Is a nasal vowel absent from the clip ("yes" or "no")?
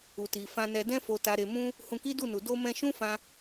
no